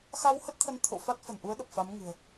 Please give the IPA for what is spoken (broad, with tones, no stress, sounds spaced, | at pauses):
x a˧ w h ə˦˥ t̚ t̪ʰ ə˨˦ n t̪ʰ o̰˧˨ f a˦˥ t̚ f ə˧˩ n ʔ u˨˦ ə̯ ɗ ə˨˩ p̚ f a˨˦ m ŋ ɨ̤˨˩ ə̯